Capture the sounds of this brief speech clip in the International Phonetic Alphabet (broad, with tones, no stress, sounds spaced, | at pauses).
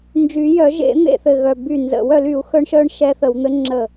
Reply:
n d͡ʒ y˨˩˦ j œ˨˩˦ ʒ ḛ˨˩˦ n̪ ḛ˧˩ θ ɘ˧˩ ɣ œ˧˩ b y˧˩ n z ə̰˨˩˦ w œ˨˩˦ l y˨˩˦ u̯ x œ˧˥ ɳ ʃ œ˧˥ ɳ ʃ ɛ˧˥ θ ə˨˩˦ w n̪ ɘ˧˥ ŋ͡ǁ ə˧˩